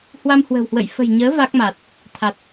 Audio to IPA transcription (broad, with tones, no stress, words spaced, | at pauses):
hwa˧mhwə̤˨˩whwə̰˧˨j fə̤˨˩jɲəː˨˦ va˦˥k̚ma˨˩t̚ | t̪ʰa˨˩t̚